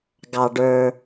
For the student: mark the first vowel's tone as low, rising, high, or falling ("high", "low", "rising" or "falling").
low